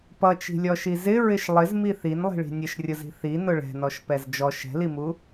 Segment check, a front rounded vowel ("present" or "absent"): absent